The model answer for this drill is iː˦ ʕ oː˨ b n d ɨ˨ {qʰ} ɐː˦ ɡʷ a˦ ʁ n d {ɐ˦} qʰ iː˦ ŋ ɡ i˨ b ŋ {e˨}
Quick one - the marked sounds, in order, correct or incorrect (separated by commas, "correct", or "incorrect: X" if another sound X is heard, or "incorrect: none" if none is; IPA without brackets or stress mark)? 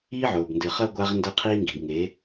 incorrect: χ, correct, incorrect: e˨˦